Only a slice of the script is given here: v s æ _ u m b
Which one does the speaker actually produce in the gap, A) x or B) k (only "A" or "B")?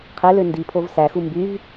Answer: A